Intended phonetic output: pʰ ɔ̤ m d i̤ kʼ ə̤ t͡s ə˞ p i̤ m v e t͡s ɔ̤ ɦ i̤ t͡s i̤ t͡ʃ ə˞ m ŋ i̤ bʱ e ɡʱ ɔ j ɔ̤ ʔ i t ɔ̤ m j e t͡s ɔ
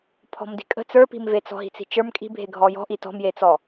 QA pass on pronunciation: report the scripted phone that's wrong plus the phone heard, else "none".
ŋ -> kʼ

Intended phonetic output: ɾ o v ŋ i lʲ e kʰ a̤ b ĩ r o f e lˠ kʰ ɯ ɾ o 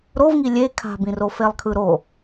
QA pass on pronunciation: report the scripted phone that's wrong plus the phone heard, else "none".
none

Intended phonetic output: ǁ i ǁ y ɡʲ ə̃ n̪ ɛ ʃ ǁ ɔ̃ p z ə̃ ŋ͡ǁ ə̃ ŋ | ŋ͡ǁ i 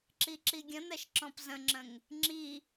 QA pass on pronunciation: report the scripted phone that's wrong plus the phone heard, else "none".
y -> i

